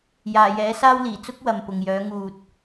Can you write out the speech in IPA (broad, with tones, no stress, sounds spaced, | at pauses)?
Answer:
j aː˨˩ j ɛː˨˥ s aː˥ w l iː˨˩ t͡s ʊ˥ k̚ w ɐ˨ m p ʊ˨ ŋ j œː˨˥ ŋ uː˨ t̚